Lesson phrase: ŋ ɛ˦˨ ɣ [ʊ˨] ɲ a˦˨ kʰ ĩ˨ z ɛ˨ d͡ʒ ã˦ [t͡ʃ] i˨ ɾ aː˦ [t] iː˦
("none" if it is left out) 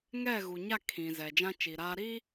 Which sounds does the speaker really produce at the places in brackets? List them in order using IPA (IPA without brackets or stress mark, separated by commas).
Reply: u˨, t͡ʃ, ɾ